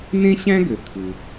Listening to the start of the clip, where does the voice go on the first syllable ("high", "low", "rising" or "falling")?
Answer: high